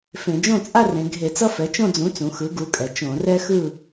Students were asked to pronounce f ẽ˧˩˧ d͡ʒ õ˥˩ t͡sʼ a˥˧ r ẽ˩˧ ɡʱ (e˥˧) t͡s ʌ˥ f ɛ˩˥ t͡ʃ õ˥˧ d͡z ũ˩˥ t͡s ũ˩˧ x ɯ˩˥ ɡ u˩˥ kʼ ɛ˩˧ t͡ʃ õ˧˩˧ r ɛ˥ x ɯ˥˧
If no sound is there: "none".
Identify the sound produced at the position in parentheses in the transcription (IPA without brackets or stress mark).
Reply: e˧˩˧